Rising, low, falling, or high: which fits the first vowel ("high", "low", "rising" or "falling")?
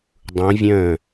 rising